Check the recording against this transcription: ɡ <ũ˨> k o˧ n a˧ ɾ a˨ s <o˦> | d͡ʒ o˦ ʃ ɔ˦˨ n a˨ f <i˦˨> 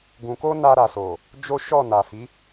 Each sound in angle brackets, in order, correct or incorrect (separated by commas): correct, incorrect, incorrect